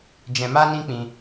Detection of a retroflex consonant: absent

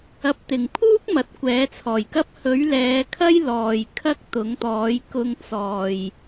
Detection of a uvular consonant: absent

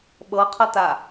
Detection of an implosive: present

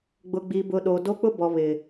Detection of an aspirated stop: absent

